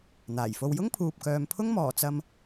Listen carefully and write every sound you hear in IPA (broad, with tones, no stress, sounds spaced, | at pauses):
n̪ aː˨˩ j f o˧ w j ʊ˥ ŋ pʰ uː˨ p̚ k œː˨ m pʰ ʊ˥ ŋ m ɔː˨˩ t͡s ɐ˧ m